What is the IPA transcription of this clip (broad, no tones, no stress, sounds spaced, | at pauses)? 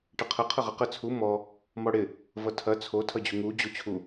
ʈ ə qʰ ə qʰ ə ʁ ɐ q ə t͡sʰ u m ɔ | m ɔ ɽ ɪ | v ʌ tʰ ɐ t͡sʰ o tʰ ʌ d͡ʑ u ŋ u d͡ʑ o t͡ɕʰ u